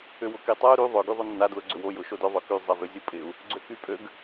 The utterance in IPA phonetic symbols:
ʏ w ʊ k i tˤ a u̯ ɾ y ðˤ ʏ ɡ y ðˤ ʊ nː a d l ʊ ɡ͡ǀ ʏ w o j ʊ ʃ o d ʏ ðˤ œ k y zˤ ɛ v ʏ zʲ ʊ pʼ ɪ u̯ | ɡ͡ǀ ø k y pʼ ø ɡ

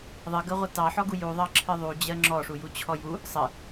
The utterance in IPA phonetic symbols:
ðˤ ɘ ɡ ɜ ʁʷ ɛ t ɑ ħ ɔ ɡ u j u ðˤ ɑ ǁʰ ɨ ðˤ u d͡ʑ ɜ ŋ͡ǁ ɔ ʂ u j u t͡ɕʰ ɔ j u | sˤ ɘ

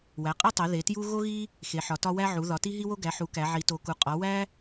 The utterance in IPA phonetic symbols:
w æ˩˧ qʼ e˦ tˤ e˩˧ ð e˩˧ t j u˦ ɣ o˦ ɣ i˦ | x e˩˧ ħ ɒ˩˧ t ɒ˦ w æ˦ ʕ u˩˧ ð ɒ˩˧ t i˦ ɦ i˦ w o˦ ɡ æ˩˧ ħ u˩˧ k æ˩˧ ʕ i˩˧ t o˩˧ k u˩˧ qʼ ɒ˩˧ w æ˦

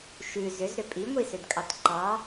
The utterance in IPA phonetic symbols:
ʃ ʉ z ʏ z ɾ ʏ pʼ i ŋʷ i s ʏ d kʼ ɑ t ǃ ɑ

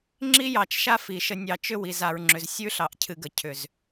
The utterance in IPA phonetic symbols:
ŋ͡ǁ i˦ j ɑ˨ t͡ʃ ʃ a˦ f i˨ ʃ ə˨ nʲ ɑ˨ t͡ʃ ʏ˦ w i˨ z a˨ ɹ ŋ͡ǁ ʏ˨ z sʲ ʉ˦ ɬ ɑ˨ ʔ cʰ ɨ˨ ɡ ə˨ cʰ ʏ˨ z

